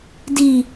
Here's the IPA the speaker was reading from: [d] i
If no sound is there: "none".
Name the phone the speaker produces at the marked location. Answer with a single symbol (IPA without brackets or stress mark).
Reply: d